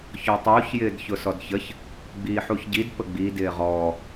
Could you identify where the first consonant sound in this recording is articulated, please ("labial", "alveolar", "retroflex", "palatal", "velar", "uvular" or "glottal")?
palatal